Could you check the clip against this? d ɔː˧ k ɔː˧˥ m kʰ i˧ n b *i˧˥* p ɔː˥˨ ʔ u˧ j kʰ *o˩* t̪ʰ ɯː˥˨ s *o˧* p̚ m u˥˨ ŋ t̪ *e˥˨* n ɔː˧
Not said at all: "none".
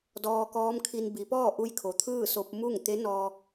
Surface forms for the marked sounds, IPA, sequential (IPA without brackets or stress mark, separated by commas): i˩˧, o˩, o˧, e˧˥